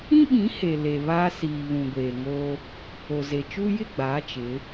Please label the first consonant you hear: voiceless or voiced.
voiced